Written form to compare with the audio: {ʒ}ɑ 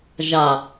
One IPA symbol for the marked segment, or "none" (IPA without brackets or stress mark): ʒ